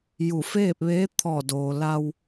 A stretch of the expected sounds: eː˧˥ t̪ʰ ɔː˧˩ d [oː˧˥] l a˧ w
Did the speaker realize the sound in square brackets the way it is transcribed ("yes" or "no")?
no